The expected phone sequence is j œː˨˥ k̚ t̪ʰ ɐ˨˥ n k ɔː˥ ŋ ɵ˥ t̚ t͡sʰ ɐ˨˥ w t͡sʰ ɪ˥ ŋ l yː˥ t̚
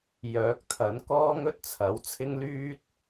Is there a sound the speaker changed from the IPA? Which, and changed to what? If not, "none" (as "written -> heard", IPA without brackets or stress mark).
none